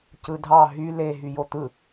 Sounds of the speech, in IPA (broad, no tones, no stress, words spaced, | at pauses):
cɯdʱɑ ɦy le ɦyjot̪ɯ